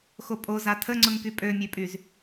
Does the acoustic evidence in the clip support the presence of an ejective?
yes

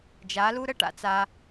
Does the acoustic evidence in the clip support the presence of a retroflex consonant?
yes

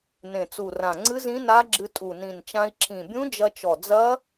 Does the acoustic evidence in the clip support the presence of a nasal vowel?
yes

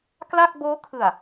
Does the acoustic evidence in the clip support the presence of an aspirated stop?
yes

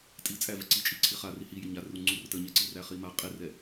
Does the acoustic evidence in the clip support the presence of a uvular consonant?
yes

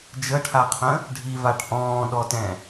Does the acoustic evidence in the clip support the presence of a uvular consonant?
yes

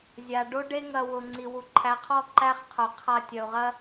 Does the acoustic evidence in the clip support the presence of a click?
yes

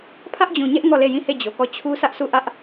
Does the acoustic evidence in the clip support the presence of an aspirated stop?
yes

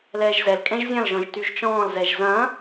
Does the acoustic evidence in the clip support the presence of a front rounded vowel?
yes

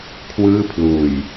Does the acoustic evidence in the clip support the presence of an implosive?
no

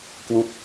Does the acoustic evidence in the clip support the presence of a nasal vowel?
no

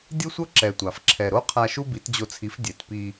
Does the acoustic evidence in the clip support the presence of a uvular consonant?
yes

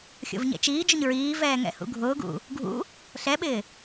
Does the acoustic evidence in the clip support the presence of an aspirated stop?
no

